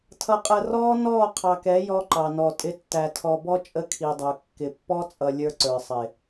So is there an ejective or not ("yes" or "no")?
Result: yes